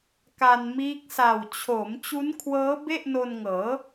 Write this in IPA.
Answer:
k a˧ n m iː˦˥ k̚ s a˨˩ w t͡ɕʰ o˩˦ m t͡ɕ u˦˥ n kʰ w ɤː˦˥ b e˥˩ ʔ n o˧ n ŋ ɤː˩˦

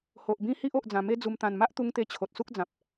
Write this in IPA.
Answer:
h o˨ ʔ b ĩ˦ h i˦ ʔ o˨ ʔ d͡z ã˨˩ m e˧ d͡z u˨˩ m t̪ ã˨˩ n m a˦ ʔ t̪ u˧ ŋ t̪ e˧ t͡ɕʰ o˨ t̚ s u˦ k̚ d͡z ã˨ p̚

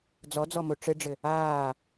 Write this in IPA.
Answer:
d͡z ɔ d͡z ɔ m o ʈ͡ʂ ɘ ɖ͡ʐ ɘ | aː

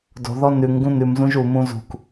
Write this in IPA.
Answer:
d o̤ ð ɔ n ʉ ŋ ɡ ũ n ʉ m z ũ ʒ u m ũ z ṳ k

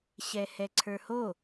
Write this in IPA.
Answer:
ɕ ɛ h ɛ ǀʰ ə˞ h o

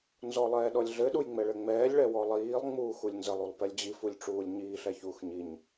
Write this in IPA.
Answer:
n z ɔ lˠ ɛː ɗ ɔ lʲ ɮ ɘ ɗ u j ŋ͡m ɛ ɭ ɘ ŋ͡m ɛː lʲ ɭ ɛ w ɔ lˠ iː lˠ ŋ͡m uː x u lʲ n z ə lˠ u lˠ p ɛ lʲ d͡ʑ i f u lʲ ʈ͡ʂ uː lʲ ɲ iː ɬ ɛ ç uː x ɲ i ɲ

